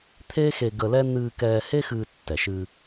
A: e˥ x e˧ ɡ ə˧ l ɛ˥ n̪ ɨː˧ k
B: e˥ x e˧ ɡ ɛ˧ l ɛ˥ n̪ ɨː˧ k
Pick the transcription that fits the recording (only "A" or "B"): A